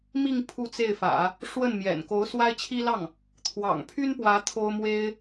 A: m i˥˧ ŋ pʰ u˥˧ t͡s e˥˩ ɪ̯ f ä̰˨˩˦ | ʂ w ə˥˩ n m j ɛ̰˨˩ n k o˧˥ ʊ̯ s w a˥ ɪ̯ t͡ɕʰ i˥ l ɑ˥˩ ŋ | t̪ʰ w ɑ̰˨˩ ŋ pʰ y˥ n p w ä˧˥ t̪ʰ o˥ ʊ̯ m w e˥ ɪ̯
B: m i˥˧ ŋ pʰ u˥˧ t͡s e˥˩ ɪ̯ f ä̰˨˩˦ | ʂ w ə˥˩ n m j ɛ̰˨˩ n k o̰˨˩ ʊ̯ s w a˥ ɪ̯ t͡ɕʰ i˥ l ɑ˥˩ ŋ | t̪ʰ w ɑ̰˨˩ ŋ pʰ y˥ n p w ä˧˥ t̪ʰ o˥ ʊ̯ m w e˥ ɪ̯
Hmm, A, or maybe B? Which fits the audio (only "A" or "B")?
A